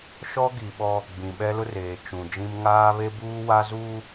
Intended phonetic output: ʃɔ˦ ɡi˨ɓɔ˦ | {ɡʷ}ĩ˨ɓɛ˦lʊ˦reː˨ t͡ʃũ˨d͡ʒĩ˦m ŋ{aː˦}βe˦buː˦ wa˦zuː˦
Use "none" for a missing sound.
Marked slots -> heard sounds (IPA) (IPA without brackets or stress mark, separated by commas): ɡ͡b, aː˦